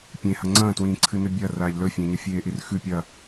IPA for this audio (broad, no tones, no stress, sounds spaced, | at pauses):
pʲ ẽ h ɐ ŋ͡ǀ ɐ̃ː t w ĩː ǀʰ ɨ n ɵ bʲ ɐ r aː ʎ l ɵ fʲ ẽ ɲ ɐ fʲ eː ʔ i r x ʉ pʲ ɐ